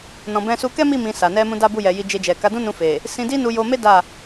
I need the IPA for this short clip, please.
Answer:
n ɔ̃˨ b ɛ̃˧ s u˧ k ɛ˦ m i˦˨ m ĩ˧ s a˨ n ɛ˧ m ũ˧ d a˦ b u˦˨ j ɛ˨ j i˧ d͡ʒ e˧ d͡ʒ ɛ˨ k a˨˦ d ũ˦ n ũ˧ f e˨ | s ĩ˧ d i˦ n u˧ j o˧ m e˦ d a˦˨

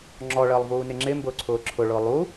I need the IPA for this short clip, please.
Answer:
ŋ͡ǁ ɔ ɭ əː lˠ v uː n ɪ ŋ͡ǁ ɪ m b ʊː ǀʰ ʊː ǁʰ ʊ ɭ ʊː lˠ uː

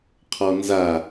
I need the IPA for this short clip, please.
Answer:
qʰ ɔ n z a

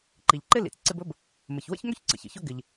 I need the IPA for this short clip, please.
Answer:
ǃ i˩ ʎ ǃ ɪ˥ l ḭ˩ t͡s ǀ ɪ˦ b ɵ˥ b | m ə˩ ç w ə̰˥ ç ŋ ɵ˥ ç ǀ ə̰˩ ç ə̰˩ ç ɵ˥ ɡ ɪ˩ ʎ

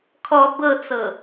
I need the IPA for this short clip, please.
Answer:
kʰ ɔ b ɤ t͡s ɤ

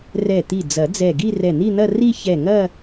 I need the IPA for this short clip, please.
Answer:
r ɛ˧˩ t̪ i˧˩ d͡z ɐ˨˩˦ d͡z ɛ˧˩ ɡ i˥˧ r ɛ˧˩ n̪ i˥˧ n̪ ɐ˥˧ r i˥˧ ç ɛ˧˩ ŋ ɐ˥˧

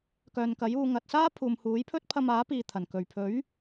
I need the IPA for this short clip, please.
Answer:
k œː˨ n k ɐ˨˥ j uː˧ ŋ ɐ˨ t̚ s aː˥ pʰ uː˨ m h uː˨˥ j pʰ ɵ˥ t̚ pʰ ɐ˧ m aː˨˥ p iː˨ t̪ʰ ɐ˨˩ n k ɵ˨˩ ɥ pʰ ɵ˨˥ ɥ

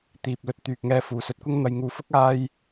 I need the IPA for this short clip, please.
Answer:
t̪ iː˨ p̚ l ɵ˧ t̚ t̪ yː˨ k̚ ŋ ɛː˧ f uː˨ s ɵ˧ t̚ kʷ ɪ˥ ŋ n̪ ɐ˧ j ŋ uː˧ f ʊ˥ k̚ aː˥ j

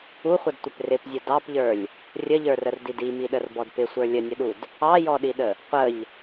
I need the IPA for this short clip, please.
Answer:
u χʷ ə d tʷ ɪ p r ɪ p zʲ ə d ɑ p ʎ ə˞ lʲ | rʲ ə ʎ ə˞ r ə r d i d i m i ɗ ə r b ɔ d p ɪ sʷ ə˞ lʲ ə nʲ ə ɗ u d | ɑ j ɔ ɗ i ɗ ə | qʷ ə ʎ

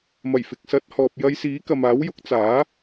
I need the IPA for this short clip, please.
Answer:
m ɐ˨˩ j f ɪ˨ k̚ s ɐ˨˥ t̚ h ɔː˨ p̚ j ɐ˧ j s iː˨˥ k ɐ˨ m aː˨˥ w j ʊ˨˥ k̚ t͡s aː˨˥

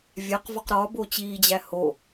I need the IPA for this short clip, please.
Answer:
vʲ æ q v ɒ q ɾ ɒ b o t͡ɕ iː d͡ʑ æ h o

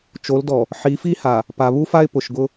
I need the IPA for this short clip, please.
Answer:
t͡ʃ o˨˦ l d ɔ˨ | ħ i˨˦ f i˦ h a˨ | p a˨ β u˦ f a˦ ɪ̯ p ʊ˨ ʃ ɡ ʊ˦

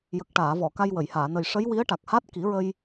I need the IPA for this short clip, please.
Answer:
j ə˨˩ k̚ ʈ aː˨˩˨ v ɔ˨˩˨ k a˧ j w ə˨˩˨ j h aː˨˩˨ n ə˨˩ j ʂ ə˧˥ j w i˧˥ ə̯ ʈ a˨˩ k̚ h a˦˥ t̚ k i˨˩˦ ɹ ə˧ j

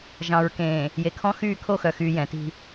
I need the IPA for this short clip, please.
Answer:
ʒ ɑ̃˨ ɹ k ẽː˨ | j e˨ kʰ ɔ̃˦ x yː˦˨ kʰ o˦˨ x œ˨ x yː˨ j ɛ̃˨˦ t i̤˦

